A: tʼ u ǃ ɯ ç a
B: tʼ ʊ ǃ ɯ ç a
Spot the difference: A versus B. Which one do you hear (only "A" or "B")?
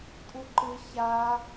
A